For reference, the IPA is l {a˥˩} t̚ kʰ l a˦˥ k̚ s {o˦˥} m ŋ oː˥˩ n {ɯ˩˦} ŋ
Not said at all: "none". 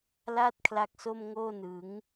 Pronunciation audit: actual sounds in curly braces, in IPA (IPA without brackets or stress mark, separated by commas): a˥˩, o˥˩, ɯ˩˦